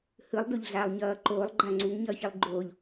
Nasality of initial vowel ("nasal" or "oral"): oral